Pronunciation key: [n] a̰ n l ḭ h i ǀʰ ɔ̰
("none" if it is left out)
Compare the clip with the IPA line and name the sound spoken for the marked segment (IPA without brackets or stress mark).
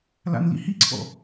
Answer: l